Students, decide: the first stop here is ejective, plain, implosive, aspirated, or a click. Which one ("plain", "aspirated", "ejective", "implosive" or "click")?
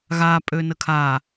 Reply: ejective